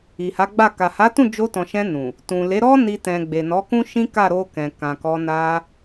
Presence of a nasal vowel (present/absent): present